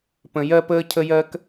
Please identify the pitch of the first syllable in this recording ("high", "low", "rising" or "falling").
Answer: low